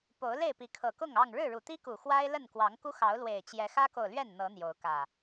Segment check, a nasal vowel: absent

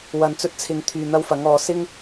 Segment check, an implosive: absent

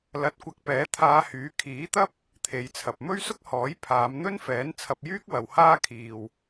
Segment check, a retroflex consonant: absent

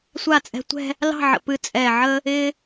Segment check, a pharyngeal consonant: present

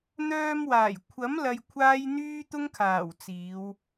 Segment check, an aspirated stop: present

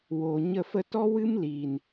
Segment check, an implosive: absent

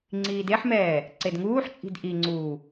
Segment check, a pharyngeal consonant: present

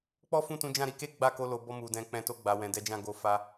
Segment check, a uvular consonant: absent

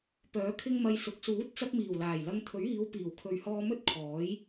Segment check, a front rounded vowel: present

